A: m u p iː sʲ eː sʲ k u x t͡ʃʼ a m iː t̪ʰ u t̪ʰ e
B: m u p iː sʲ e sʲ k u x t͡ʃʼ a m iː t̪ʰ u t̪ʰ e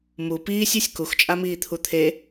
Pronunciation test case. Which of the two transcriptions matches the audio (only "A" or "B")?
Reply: B